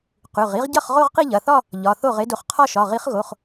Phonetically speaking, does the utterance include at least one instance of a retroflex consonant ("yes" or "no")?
no